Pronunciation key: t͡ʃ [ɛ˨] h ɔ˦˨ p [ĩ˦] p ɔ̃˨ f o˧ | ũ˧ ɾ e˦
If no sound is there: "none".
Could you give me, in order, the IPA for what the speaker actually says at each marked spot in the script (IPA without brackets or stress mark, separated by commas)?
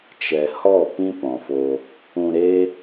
ɛ˨, ĩ˦